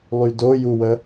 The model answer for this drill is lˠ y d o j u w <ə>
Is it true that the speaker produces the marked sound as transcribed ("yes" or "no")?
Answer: yes